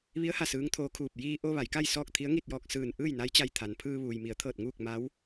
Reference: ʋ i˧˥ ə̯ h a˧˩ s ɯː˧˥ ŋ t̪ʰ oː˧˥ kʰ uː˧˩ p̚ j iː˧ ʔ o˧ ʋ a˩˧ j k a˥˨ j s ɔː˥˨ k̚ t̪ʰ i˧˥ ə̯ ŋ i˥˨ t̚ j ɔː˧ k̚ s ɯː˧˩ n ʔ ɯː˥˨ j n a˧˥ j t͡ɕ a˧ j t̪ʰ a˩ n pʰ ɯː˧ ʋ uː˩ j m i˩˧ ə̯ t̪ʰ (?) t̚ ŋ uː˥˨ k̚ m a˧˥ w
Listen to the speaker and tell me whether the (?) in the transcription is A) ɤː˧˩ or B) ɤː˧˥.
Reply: A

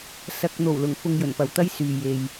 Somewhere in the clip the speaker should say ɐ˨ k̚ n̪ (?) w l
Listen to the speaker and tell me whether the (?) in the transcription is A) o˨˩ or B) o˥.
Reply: A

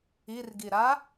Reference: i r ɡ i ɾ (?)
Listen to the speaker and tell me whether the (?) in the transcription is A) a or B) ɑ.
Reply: A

